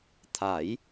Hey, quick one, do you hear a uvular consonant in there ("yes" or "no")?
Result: no